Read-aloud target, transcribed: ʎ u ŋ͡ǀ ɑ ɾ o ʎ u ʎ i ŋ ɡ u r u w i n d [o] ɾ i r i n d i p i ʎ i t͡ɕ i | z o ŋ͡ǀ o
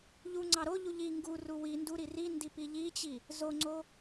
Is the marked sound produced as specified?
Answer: no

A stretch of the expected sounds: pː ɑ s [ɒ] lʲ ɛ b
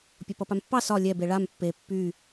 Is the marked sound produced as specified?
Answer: yes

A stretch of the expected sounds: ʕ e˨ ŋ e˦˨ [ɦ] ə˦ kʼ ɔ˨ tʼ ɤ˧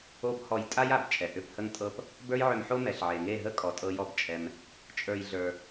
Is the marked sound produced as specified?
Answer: yes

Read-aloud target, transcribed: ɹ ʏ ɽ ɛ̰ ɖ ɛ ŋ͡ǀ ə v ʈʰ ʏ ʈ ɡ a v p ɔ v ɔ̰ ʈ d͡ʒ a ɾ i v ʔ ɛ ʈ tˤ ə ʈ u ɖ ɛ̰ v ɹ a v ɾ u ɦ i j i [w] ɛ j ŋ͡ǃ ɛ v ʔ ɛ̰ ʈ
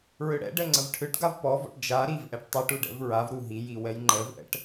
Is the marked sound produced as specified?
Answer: yes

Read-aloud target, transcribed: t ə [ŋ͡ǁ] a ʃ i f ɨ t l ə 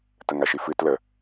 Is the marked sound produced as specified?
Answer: no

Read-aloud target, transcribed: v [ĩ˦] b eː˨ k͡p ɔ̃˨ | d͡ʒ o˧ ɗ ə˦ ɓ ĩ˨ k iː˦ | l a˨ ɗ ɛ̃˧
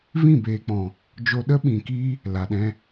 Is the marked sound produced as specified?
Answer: no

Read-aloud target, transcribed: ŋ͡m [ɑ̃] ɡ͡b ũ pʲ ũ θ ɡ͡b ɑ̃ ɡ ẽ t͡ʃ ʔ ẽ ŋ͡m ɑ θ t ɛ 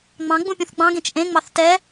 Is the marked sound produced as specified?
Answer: yes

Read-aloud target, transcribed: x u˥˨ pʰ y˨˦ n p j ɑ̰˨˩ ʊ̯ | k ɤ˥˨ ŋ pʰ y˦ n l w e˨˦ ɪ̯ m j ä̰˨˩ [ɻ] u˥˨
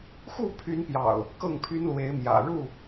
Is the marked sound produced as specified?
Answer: yes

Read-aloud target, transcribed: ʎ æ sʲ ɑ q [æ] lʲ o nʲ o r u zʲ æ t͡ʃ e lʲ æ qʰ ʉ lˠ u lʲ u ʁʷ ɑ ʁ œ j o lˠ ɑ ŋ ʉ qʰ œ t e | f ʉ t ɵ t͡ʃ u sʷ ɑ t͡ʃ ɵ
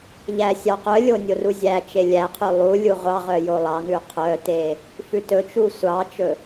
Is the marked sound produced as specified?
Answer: no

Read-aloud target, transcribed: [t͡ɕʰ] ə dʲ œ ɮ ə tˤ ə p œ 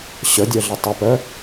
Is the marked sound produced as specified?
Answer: no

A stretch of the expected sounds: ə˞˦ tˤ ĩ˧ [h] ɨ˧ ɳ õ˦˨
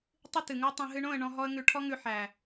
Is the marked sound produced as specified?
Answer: no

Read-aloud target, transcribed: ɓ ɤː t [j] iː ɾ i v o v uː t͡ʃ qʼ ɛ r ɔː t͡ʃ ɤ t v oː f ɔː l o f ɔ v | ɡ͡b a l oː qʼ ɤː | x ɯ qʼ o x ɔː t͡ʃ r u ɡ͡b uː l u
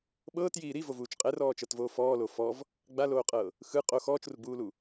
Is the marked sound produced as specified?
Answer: yes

